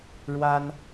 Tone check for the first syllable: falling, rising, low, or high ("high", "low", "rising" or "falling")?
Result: high